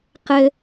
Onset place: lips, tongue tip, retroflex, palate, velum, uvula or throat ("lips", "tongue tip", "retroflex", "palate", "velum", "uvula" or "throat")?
uvula